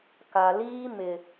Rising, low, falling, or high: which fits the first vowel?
low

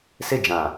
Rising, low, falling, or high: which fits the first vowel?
falling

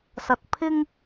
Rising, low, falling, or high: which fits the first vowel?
low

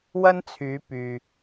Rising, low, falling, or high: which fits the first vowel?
high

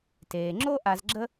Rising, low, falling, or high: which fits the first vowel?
low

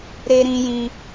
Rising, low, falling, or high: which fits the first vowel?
high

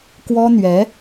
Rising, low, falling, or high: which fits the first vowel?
high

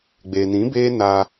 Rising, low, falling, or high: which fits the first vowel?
low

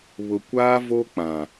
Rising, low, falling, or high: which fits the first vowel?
low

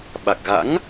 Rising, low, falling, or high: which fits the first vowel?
low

